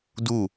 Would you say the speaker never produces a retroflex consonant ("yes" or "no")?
yes